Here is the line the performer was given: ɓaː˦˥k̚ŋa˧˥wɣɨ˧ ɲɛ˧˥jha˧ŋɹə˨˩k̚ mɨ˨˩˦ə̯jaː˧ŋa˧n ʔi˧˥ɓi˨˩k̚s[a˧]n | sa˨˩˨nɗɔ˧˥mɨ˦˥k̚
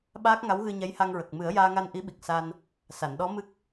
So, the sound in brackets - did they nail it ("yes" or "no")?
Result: yes